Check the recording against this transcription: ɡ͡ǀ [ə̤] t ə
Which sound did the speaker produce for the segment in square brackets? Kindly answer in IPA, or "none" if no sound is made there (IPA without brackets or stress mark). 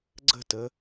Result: ə̤